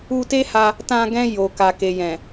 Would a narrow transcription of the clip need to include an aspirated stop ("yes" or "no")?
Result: no